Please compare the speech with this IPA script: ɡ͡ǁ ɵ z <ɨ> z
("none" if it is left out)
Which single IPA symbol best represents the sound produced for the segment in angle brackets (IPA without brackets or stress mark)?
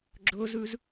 ʉ